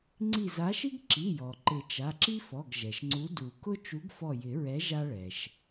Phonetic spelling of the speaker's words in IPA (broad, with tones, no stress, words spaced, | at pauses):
ŋ͡ǀi˧˩za˨˥ʃi˥ɡ ǁi˩˧˩jɔ˩ ǃɪ˨˩˦t͡ʃa˩˧˩ǁi˥fɔ˩˧˩ɡ ʒɛ˩ʃŋ͡ǀu˨˥du˨˩˦kʊ˥ t͡ʃu˨˥ɡfɔ˧˩jɪ˨˩˦ɹɛ˨˥ ʒa˥ɭɛ˩ʃ